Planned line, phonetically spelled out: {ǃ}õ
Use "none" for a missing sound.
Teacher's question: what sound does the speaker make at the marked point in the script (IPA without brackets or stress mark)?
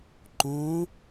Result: ǃ